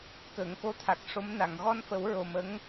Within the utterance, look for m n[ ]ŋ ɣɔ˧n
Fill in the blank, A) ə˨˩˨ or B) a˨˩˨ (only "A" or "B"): B